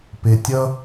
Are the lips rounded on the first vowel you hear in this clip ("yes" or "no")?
no